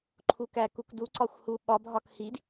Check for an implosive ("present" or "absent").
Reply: present